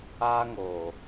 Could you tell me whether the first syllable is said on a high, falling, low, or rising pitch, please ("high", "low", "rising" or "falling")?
high